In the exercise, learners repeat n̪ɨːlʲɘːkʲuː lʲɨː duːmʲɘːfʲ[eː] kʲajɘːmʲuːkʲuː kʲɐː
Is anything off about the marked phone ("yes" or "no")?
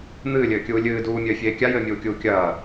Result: no